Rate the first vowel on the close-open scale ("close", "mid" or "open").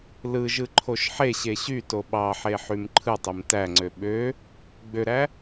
close